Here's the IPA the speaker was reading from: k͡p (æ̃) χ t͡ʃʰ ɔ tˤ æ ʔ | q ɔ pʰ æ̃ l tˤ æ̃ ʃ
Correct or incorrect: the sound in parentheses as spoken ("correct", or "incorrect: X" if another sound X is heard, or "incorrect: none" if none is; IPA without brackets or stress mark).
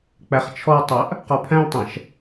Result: incorrect: æ